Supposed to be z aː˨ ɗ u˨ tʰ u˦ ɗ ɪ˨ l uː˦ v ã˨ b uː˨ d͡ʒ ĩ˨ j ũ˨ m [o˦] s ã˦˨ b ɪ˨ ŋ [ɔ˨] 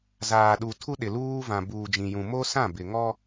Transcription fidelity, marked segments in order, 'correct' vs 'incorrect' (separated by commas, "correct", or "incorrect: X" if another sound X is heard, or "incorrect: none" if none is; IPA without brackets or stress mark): correct, incorrect: ɔ˦